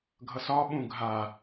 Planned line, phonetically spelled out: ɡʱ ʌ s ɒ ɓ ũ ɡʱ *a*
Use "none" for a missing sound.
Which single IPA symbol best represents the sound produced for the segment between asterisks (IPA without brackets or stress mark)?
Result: a